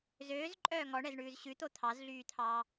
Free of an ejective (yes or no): no